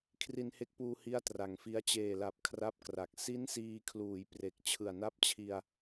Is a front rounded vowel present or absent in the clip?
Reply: absent